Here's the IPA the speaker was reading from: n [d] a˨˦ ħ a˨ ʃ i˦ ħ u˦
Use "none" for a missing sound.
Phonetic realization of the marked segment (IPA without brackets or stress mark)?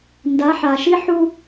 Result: d